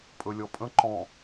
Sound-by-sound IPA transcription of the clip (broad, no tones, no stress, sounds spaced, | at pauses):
pʼ ɵ lʲ ɔ pʼ ə̃ ǃ ɔ̃